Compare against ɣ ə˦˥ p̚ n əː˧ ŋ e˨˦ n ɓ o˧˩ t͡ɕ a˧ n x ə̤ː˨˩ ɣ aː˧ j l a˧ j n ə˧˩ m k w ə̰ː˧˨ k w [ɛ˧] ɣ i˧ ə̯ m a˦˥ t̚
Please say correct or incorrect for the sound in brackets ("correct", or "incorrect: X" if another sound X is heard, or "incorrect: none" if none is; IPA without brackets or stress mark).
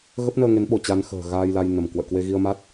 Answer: incorrect: e˧